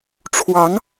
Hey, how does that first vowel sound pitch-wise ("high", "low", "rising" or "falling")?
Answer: rising